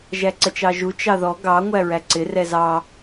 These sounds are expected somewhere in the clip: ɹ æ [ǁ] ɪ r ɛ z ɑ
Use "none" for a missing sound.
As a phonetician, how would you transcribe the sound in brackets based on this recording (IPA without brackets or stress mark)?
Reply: ǀ